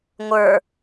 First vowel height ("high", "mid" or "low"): mid